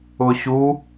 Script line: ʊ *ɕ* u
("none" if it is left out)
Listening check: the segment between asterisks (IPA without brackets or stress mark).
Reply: ɕ